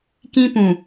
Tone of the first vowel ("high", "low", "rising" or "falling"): high